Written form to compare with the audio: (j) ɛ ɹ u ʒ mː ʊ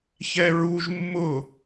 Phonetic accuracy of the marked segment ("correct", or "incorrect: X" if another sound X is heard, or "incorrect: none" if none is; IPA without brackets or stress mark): incorrect: ç